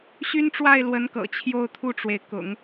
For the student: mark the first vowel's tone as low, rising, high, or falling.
high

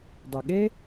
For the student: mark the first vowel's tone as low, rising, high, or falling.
low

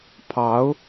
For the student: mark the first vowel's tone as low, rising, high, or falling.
rising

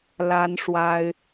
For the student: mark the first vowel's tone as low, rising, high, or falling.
high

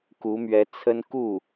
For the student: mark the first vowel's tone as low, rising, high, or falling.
rising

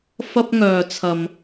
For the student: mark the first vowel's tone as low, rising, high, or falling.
high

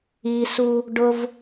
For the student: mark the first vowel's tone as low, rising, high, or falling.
low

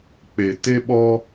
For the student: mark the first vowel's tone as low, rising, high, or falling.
low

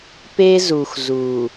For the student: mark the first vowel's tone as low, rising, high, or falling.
high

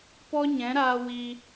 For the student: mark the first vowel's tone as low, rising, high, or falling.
high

